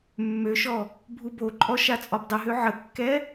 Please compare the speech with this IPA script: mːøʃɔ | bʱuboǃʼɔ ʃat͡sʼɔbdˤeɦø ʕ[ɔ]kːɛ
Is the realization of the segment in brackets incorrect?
yes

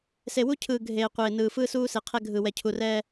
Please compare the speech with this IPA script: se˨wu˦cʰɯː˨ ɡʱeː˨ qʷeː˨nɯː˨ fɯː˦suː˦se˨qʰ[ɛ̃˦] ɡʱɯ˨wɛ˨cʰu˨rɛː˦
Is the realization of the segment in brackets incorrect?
yes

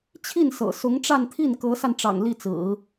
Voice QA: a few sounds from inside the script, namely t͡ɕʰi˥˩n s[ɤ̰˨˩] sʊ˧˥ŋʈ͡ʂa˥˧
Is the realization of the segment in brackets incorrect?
no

